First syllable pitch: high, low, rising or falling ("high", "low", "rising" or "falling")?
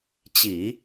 low